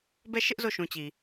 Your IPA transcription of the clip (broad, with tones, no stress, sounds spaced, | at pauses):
b ɛ˦˨ ʃ ɪ˦ ʔ z o˦˨ ʃ ũ˨ t͡ɕ i˨